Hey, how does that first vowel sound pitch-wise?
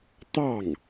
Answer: falling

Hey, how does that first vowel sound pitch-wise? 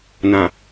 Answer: low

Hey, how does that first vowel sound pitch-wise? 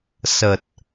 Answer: low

